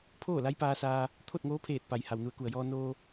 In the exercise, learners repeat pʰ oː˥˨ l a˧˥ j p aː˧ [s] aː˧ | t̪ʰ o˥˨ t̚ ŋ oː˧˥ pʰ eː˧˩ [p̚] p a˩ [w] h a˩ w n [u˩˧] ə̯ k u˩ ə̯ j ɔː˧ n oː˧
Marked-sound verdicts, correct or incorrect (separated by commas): correct, incorrect, incorrect, correct